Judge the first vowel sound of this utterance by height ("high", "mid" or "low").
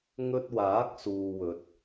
mid